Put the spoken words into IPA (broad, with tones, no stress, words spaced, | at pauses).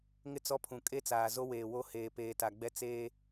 ŋɪ˦ t͡sɔ˦pʰũ˨ kʼe˦t͡saː˨ zo˦weː˨ wo˦ heː˨peː˨ta˨ɡ͡bɛ˦ t͡seː˦